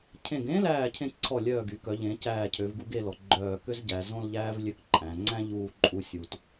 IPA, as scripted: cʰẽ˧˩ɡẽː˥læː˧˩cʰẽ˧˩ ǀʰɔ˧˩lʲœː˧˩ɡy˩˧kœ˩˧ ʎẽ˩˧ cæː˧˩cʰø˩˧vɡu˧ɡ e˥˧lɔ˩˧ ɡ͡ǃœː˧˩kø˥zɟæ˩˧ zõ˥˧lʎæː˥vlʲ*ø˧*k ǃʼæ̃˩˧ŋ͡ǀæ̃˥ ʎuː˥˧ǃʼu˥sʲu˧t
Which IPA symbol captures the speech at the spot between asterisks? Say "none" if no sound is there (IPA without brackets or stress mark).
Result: ø˧